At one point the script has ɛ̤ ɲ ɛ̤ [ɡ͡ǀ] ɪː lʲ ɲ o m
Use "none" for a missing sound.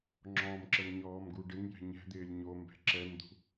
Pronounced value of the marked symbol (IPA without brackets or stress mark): d̪